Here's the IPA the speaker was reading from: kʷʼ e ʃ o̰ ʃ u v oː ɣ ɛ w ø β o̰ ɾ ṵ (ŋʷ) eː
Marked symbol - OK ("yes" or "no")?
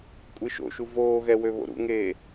no